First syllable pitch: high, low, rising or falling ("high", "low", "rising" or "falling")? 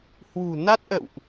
low